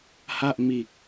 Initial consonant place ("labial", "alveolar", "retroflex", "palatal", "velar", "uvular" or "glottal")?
glottal